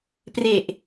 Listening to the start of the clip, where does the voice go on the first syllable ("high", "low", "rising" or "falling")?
low